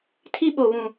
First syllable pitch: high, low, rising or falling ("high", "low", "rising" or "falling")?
high